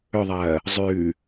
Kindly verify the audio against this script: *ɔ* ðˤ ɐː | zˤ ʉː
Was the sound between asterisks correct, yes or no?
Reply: no